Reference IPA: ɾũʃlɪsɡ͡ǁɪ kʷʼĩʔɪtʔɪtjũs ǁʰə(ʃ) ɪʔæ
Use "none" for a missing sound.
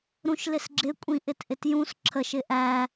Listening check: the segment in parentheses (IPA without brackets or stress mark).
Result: ʃ